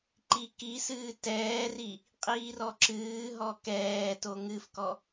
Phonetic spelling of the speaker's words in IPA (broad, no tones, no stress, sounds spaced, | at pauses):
ǃ i k i s ɨː t ɛː r i | qʼ iː r ɔ ǁ ɨː ɦ ɔ k ɛː t o ŋ ɨ f k ɔ